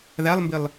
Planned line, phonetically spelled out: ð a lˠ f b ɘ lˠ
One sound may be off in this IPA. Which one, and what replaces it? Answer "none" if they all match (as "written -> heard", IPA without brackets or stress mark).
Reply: f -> m